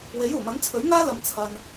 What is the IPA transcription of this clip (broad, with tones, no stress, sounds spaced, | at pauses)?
w e˨˥ j uː˨˩ m ɐ˨˥ n t͡sʰ ɵ˨˥ ɥ ŋ aː˥ l ɐ˨ m t͡sʰ ɐ˨ n